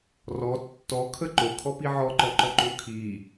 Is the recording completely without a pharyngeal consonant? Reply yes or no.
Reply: no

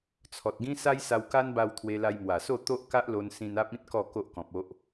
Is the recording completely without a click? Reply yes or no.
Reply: yes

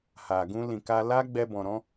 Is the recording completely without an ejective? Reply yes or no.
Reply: yes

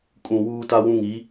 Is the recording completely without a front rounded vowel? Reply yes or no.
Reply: yes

